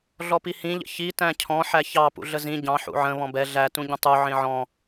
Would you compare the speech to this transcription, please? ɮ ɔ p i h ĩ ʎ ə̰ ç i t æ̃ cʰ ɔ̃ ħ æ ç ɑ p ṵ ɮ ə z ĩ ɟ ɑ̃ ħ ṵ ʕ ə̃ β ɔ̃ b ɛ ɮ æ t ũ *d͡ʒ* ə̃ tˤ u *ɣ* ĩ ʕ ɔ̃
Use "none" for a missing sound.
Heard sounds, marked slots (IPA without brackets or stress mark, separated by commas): ɟ, ʕ